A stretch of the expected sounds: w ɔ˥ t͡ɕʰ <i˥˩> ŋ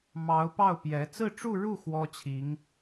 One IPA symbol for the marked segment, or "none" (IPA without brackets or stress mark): i˧˥